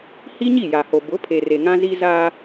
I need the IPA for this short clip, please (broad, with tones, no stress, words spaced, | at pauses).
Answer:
hi˦ɲi˦˨ja˨ho˨ bʊ˨˦ pʰe˨re˨ŋã˦zi˦ za˦